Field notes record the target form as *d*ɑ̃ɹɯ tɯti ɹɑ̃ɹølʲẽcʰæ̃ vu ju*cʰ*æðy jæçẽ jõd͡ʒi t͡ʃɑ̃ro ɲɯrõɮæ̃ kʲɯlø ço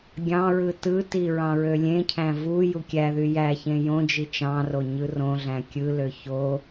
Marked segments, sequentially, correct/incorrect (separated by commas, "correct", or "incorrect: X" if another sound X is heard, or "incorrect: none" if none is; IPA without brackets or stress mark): incorrect: ɡʲ, incorrect: kʲ